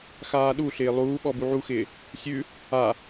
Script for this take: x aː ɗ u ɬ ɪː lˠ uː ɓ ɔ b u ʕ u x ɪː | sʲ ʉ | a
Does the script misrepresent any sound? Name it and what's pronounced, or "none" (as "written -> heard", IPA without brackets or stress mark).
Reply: none